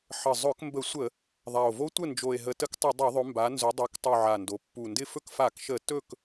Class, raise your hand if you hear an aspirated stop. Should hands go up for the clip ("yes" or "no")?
no